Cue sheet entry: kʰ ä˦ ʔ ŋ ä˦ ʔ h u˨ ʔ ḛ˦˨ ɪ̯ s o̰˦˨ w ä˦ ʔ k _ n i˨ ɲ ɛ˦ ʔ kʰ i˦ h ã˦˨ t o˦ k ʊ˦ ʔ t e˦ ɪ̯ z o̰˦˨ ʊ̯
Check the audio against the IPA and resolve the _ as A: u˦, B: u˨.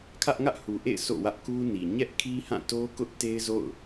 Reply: A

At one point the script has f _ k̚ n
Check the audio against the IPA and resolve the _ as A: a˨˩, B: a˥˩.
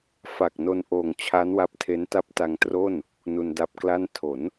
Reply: A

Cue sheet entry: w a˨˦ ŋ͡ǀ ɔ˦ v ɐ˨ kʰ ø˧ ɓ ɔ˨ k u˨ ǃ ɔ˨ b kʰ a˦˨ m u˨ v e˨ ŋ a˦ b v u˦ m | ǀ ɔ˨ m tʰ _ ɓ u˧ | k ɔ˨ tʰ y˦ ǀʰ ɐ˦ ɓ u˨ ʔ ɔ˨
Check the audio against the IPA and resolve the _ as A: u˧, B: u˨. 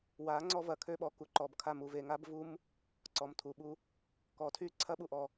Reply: B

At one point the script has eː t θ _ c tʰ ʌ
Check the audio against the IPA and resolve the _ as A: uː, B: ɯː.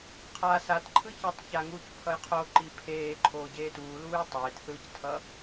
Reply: B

